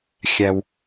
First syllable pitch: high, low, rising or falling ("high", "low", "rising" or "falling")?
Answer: low